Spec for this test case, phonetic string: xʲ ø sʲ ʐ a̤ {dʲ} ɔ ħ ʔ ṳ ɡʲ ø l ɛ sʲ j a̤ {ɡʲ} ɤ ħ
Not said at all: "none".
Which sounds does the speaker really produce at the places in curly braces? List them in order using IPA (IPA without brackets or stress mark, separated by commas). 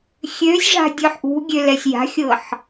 dʲ, xʲ